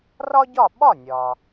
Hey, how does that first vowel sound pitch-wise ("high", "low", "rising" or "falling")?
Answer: high